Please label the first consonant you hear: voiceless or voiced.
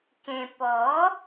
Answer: voiceless